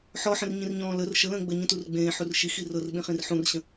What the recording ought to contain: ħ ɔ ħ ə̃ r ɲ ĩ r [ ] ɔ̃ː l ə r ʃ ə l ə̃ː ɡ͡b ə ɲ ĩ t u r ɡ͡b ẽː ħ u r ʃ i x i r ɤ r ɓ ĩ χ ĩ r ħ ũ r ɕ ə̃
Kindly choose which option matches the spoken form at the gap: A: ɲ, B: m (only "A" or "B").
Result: A